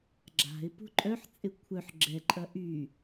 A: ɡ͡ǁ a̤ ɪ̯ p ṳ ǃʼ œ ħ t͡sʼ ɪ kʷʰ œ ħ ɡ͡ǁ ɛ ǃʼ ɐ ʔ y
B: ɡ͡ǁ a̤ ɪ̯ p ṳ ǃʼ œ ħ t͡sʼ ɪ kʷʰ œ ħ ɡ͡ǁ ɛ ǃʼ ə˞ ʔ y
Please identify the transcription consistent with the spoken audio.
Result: A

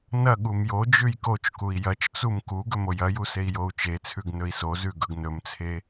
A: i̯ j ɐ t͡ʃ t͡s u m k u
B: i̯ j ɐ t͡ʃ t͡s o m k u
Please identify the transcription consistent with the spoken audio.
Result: A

